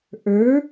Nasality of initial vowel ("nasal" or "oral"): oral